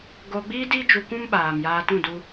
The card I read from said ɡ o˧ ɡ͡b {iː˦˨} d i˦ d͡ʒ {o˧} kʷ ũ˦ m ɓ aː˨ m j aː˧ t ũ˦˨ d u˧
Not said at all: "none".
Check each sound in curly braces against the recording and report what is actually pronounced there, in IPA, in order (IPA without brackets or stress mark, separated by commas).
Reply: iː˦, u˧